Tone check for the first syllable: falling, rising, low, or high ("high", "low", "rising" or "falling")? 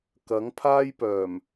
rising